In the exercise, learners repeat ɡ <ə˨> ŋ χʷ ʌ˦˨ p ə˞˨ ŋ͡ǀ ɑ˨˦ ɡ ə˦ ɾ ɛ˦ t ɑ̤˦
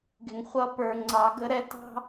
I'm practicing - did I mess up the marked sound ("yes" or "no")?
yes